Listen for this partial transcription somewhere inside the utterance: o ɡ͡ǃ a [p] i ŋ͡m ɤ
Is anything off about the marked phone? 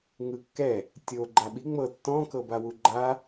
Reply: yes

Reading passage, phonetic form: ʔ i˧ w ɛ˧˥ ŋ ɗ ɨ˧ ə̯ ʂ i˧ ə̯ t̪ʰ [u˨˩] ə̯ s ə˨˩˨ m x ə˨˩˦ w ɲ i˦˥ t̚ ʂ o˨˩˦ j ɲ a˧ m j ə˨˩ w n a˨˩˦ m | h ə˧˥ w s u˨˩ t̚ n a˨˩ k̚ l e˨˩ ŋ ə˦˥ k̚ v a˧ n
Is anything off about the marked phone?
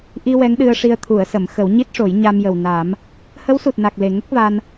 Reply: yes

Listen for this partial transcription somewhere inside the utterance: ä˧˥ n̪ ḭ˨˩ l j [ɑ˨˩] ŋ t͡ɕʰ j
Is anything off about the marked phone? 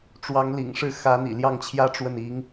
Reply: yes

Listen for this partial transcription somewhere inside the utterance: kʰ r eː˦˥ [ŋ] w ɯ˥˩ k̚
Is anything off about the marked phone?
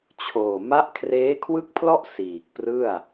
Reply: yes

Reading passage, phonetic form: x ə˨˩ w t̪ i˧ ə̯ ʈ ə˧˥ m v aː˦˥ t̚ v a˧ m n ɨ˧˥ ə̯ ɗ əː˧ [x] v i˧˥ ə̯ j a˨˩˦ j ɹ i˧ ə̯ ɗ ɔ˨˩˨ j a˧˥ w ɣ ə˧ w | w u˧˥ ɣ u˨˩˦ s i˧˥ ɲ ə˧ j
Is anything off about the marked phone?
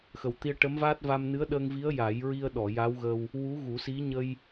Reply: yes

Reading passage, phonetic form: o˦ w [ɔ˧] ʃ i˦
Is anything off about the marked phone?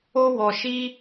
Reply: no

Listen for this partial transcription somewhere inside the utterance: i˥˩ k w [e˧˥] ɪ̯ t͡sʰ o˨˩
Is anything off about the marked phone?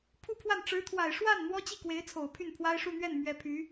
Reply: no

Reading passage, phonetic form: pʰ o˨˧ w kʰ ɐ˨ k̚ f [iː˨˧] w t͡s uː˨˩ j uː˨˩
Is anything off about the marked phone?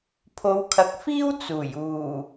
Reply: yes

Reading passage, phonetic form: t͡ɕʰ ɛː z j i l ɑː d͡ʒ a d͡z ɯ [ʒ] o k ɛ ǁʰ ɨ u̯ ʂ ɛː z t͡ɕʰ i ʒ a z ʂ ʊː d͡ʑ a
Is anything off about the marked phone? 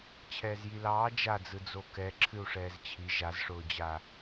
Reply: yes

